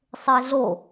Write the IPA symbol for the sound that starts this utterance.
sˤ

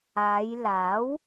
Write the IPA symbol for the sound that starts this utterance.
aː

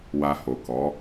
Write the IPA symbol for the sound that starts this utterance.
w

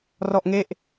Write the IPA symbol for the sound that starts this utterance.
r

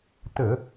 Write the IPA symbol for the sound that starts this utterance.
t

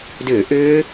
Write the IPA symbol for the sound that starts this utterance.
d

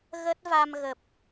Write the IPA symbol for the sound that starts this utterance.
ɣ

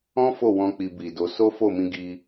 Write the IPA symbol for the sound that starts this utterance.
ɔ̃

